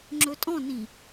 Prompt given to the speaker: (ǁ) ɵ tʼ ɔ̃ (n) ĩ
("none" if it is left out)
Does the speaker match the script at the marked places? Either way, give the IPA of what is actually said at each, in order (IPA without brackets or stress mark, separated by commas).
ŋ͡ǁ, n